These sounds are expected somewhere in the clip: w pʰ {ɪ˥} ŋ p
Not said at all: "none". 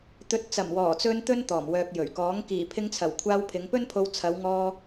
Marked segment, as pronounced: ɪ˨˧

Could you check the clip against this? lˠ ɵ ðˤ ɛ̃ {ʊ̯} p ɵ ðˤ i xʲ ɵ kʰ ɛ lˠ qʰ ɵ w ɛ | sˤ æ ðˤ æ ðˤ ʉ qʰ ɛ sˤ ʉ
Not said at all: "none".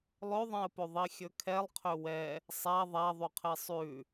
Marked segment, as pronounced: ə̯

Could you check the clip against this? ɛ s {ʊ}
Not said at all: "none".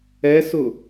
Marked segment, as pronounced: ʊ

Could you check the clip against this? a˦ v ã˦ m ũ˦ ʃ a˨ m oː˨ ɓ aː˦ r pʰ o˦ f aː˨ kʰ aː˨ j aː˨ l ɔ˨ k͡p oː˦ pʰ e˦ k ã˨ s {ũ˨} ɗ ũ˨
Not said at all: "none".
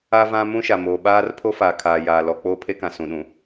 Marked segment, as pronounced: ũ˨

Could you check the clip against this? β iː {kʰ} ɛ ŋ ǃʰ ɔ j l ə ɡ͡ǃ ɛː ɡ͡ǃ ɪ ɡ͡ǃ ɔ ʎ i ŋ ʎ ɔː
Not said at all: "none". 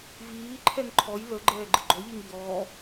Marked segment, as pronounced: ǃʰ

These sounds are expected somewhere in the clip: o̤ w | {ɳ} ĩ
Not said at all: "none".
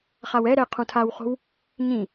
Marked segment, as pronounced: ɲ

